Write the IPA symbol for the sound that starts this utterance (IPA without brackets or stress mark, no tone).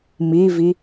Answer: m